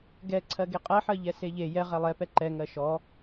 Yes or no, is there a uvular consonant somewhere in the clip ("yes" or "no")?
yes